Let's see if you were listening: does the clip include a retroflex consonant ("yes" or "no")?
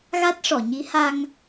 yes